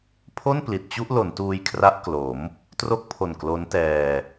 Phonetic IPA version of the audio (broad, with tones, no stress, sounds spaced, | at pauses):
pʰ o˥˩ n p l i˨˩ t̚ t͡ɕ u˥˩ ʔ l o˩˦ n t uː˧ j kʰ r a˦˥ ʔ k l o˩˦ m | t r o˥˩ k̚ pʰ o˨˩ n k l o˦˥ n t ɛː˧